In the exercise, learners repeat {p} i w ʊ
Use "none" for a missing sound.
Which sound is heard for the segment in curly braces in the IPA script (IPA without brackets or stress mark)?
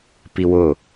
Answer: p